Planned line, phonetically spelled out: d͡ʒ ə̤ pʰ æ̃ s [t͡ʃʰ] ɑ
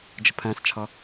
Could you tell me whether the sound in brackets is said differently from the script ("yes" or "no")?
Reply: no